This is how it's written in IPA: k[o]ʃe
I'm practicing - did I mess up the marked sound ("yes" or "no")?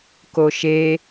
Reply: no